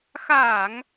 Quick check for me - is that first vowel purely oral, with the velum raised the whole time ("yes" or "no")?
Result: yes